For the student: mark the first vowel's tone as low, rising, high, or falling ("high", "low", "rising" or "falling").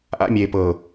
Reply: high